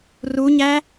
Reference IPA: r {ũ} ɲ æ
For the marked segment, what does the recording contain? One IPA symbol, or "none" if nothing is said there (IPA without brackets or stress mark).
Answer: u